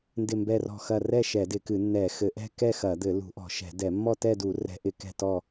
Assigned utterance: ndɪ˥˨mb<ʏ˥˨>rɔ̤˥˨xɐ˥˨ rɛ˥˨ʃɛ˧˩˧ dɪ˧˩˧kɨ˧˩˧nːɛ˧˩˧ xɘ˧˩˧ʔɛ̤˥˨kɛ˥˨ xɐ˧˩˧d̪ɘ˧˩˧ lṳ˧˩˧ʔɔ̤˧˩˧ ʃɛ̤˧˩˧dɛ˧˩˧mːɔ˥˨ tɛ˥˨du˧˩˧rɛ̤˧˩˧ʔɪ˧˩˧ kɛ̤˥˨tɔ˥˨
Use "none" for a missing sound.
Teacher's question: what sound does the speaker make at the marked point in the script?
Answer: ɛ˥˨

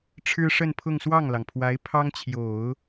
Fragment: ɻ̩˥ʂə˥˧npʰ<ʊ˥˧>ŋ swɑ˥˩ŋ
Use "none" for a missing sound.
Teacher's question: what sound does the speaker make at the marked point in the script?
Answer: ʊ˥˧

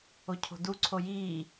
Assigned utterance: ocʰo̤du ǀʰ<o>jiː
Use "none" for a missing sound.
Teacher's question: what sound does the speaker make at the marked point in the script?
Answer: o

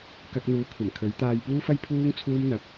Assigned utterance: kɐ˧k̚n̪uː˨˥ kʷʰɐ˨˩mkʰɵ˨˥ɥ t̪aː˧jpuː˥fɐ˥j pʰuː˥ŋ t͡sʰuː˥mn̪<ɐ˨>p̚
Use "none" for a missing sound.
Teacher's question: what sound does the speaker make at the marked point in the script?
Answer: ɐ˨˥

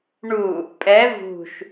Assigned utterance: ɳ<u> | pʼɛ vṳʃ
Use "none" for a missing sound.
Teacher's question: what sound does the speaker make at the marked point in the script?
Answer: u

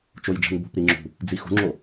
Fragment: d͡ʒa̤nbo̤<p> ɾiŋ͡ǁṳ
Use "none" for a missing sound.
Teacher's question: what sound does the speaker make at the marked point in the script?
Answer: p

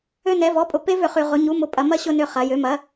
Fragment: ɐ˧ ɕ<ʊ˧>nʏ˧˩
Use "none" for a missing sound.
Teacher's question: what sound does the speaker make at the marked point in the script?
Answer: ʊ˧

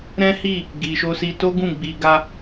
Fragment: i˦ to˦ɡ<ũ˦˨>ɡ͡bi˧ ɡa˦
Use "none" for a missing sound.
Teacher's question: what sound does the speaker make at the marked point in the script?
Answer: ũ˦˨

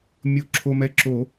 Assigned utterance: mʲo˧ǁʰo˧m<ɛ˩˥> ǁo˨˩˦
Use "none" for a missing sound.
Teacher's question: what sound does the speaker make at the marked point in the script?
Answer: ɛ˧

